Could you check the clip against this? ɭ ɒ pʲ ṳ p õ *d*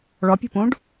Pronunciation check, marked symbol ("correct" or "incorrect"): incorrect